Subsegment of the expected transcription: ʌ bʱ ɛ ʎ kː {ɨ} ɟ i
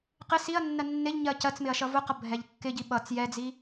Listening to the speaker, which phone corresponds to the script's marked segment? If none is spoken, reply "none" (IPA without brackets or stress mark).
ɪ